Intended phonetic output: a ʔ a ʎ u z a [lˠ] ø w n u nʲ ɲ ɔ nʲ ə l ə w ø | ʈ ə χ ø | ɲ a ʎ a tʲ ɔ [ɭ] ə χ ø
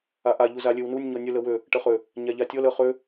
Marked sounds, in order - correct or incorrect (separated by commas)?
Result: incorrect, incorrect